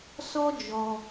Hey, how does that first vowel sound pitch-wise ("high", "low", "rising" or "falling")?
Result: high